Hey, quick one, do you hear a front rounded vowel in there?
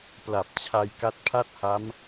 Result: no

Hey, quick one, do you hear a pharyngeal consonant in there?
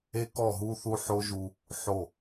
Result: yes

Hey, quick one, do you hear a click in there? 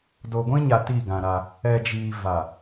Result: no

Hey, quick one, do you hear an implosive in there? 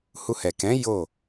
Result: no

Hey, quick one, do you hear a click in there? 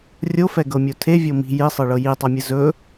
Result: no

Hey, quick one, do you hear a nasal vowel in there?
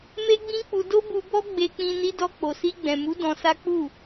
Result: yes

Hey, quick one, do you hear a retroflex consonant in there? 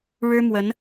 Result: yes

